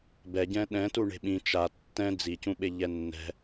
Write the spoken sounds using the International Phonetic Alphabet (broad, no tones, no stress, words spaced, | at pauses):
bɛɟɛ̃ ɗɛ̃tu ɳe̤ɓĩ t͡ʃa tːɛ̃ d͡zicũɓe ʎɛnːɛ̤